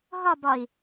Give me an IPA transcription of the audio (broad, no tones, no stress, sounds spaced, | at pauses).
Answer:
ɦ ɒ b ɒ i̯